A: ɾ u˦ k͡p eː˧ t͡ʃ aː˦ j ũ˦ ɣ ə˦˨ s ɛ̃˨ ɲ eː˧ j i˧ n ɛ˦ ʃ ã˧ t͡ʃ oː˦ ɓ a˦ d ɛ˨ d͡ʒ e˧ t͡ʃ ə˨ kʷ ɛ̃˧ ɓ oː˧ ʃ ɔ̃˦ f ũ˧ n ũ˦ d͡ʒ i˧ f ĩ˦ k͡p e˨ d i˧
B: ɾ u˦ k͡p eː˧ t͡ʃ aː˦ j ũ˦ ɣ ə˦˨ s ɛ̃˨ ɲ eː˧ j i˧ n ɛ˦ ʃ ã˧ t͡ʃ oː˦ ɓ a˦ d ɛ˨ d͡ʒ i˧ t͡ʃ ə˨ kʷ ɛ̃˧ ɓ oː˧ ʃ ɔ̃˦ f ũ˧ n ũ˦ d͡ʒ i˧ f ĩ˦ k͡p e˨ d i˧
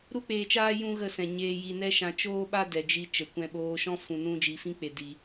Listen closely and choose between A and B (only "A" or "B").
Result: B